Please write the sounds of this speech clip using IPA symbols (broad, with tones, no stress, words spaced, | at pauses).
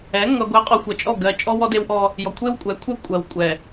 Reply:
ɛ˨˦ ŋʌ˨ ɡʷɛ˨qʼɔ˨ xʷʌ˨t͡ʃʼɔ˦˨ ɡɜ˨ t͡ʃʼɔ˦wɔ˦de˦wʔɔ˦ | jɔ˨kʷʰe˦wkʷʼɛ˨˦kʷʰɛ˦ kʷʼɜ˨wkʷʼɛ˨